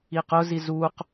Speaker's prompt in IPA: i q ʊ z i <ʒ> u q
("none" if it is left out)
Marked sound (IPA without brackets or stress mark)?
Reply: z